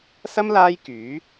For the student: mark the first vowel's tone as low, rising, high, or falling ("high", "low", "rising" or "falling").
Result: high